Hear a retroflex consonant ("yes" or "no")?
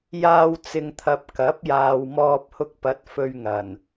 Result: no